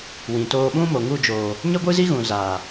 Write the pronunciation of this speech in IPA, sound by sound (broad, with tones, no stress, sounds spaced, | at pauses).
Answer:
w ĩ˨ t oː˧ ɓ ũ˦ m o˨ ŋ u˦˨ d͡ʒ oː˨ | ɲ ə˦ ɡʷ ɨ˦ z i˦ ɣ ũ˨ z aː˨